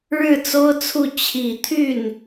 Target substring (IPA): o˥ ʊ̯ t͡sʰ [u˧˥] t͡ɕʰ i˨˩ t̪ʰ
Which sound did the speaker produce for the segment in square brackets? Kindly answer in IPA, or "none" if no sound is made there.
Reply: u˥˩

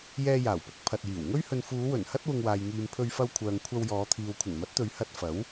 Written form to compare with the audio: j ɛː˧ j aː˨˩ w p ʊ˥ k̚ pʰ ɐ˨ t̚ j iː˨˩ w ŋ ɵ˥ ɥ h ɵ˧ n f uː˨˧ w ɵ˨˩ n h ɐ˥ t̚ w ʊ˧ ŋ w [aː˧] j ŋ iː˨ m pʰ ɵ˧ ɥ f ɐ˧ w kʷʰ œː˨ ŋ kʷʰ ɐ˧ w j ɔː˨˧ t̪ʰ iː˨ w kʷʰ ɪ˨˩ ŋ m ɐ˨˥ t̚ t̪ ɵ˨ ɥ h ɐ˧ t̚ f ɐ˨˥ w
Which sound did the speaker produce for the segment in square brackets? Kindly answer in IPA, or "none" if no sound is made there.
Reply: aː˨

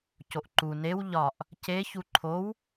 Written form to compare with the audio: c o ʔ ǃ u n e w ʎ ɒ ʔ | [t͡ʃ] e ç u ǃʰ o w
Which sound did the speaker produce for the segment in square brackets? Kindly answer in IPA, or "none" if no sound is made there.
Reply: c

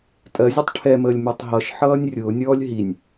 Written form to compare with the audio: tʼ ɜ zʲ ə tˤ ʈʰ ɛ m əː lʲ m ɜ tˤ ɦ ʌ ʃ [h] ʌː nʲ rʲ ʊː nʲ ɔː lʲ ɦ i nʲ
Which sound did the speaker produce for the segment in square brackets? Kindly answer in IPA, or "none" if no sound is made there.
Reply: ħ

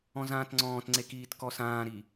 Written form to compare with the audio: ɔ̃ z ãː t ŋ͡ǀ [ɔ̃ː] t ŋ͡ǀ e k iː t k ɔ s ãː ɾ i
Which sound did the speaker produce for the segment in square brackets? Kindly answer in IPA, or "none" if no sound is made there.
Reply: ɔ̃ː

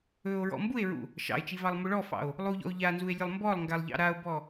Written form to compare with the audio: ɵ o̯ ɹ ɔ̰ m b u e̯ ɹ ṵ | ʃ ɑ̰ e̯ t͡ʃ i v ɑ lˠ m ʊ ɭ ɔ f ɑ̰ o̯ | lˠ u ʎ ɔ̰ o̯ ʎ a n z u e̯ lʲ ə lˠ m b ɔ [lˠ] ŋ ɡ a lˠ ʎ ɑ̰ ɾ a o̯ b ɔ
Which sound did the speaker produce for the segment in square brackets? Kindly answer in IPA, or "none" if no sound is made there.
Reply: lˠ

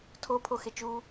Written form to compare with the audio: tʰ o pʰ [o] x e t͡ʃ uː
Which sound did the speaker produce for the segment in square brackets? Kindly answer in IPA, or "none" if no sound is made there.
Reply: o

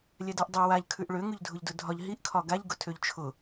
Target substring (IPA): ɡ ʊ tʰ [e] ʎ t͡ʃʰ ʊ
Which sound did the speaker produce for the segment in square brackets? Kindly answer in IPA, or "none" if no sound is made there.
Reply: ø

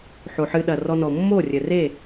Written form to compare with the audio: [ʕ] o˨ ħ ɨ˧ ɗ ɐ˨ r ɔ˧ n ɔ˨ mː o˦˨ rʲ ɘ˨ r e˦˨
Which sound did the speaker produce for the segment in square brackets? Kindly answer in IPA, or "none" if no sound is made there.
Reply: ħ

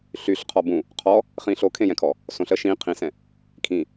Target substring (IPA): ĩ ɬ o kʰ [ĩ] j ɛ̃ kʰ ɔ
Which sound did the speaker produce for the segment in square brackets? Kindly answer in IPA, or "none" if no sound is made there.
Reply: ẽ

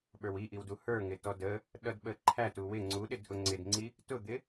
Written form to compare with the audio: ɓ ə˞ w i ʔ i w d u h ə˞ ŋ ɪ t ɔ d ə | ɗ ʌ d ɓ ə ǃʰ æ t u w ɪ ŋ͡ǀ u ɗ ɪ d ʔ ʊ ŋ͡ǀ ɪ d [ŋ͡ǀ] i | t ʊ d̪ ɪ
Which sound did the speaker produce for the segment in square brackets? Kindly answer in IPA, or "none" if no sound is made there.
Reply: ŋ͡ǀ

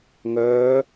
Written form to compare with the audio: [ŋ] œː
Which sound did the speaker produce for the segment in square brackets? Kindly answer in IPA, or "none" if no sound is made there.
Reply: ŋ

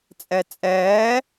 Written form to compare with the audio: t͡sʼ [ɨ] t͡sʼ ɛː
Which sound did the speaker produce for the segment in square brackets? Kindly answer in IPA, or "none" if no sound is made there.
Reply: ɛ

